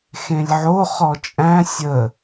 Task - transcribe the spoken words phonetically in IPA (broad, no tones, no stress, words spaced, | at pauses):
xẽlʲʕo χɔt͡ʃʼæ̃ sʲə